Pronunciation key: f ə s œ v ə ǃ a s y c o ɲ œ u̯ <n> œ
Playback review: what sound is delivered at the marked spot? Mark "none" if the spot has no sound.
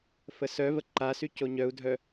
dʱ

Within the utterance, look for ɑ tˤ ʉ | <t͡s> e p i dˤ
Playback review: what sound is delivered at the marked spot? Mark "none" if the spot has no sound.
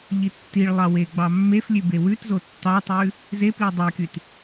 z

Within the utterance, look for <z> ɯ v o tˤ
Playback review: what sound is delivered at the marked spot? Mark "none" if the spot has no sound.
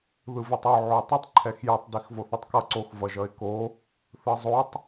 ð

